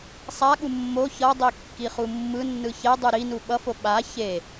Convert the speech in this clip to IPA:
sˤ a ɠ u mː o ç ʌ dˤ i kː i χ u mː ɯ nː ɯ ç ɛ dˤ u ɾ i n u ɓ ʌ f o ɓ a ç e

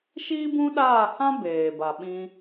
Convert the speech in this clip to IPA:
ʃ iː˦ b ũ˦ ɗ aː˦˨ h ã˦ b eː˨ b a˨ ɓ ĩ˧

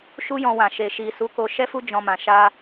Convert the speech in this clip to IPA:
ʃ u˦ j ɔ̃˧ w ã˨ ʃ e˨ ʃ i˨ s u˨˦ k o˧ ʃ ɛ˦ f u˦ d͡ʒ ɔ̃˧ m ã˨ ʃ a˧

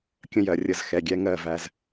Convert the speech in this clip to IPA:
kʲ ə̃˦ j ɜ˨ rʲ ə˧ z x ɛ˨ ɡʲ ɛ˦ ŋ ɜ˦˨ v æ˧ z

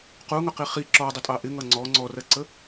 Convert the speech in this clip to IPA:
q u ŋ ʊ q i χ i ǁ ɔ dˤ ɪ tʼ ɑ ʔ ɪ ŋ ʌ ŋ͡ǀ ɔ ŋ͡ǀ ɔ r ɜ ǀ ə

